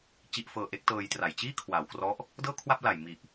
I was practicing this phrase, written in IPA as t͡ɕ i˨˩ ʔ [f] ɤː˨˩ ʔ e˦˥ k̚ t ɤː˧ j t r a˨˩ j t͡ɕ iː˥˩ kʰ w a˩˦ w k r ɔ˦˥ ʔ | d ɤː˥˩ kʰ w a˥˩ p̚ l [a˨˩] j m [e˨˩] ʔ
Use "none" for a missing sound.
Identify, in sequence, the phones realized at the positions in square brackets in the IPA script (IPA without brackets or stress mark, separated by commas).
f, a˨˩, i˨˩